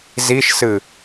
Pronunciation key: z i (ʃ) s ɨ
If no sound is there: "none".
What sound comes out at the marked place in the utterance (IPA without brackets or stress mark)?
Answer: ʃ